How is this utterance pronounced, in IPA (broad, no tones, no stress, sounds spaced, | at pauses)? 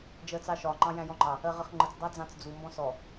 d͡ʒ ɜ t͡s ɑ ʃ ɒ ŋ͡ǃ ɑ̃ j æ̃ j ɔ̃ ŋ͡ǃ ɑ | ɜ ʁ ə χ ŋ͡ǃ ə t͡s dˤ ɑ d͡z ɑ̃ t͡s d͡z u m b ɔ̃ s ɔ